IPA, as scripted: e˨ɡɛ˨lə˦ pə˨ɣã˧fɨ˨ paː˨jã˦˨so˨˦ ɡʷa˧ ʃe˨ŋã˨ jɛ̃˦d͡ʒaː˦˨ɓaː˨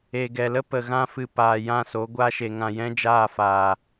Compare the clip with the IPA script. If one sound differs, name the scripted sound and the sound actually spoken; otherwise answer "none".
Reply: ɓ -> f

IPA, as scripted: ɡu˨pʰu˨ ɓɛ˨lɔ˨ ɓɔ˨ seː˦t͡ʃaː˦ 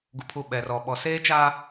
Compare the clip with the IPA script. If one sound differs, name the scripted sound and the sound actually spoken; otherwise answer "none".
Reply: l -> r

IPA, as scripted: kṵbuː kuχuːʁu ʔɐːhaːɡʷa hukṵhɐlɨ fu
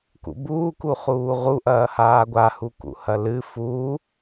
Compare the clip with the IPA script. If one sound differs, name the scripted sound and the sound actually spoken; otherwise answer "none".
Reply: none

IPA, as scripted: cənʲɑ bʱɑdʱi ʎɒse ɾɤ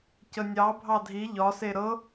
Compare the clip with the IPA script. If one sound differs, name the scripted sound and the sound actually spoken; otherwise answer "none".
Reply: none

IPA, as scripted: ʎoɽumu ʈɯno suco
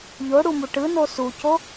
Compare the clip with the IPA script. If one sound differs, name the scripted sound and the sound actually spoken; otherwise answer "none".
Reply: none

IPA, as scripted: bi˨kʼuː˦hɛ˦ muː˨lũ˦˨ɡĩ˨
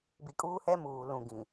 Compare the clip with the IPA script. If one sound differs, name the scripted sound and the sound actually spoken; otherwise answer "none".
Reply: none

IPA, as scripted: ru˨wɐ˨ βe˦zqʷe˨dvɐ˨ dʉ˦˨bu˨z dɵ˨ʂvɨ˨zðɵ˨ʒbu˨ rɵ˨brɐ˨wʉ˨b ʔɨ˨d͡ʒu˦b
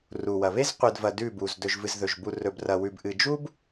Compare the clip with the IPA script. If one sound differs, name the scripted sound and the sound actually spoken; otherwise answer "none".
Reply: ʂ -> ʒ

